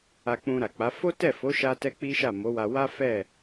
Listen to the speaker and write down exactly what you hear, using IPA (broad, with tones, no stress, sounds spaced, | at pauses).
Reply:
a˧ k͡p ũ˧ ɾ a˨ k͡p a˨˦ f o˦ t ɛ˦˨ f o˨˦ ʃ a˦ t ɛ˦ k͡p i˦ ʃ a˦˨ m o˨˦ w a˧ w a˦ f ɛ˦˨